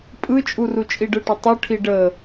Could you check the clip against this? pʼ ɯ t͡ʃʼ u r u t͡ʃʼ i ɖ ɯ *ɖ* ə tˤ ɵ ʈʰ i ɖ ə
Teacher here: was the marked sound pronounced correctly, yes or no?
no